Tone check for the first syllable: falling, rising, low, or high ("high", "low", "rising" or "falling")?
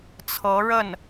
rising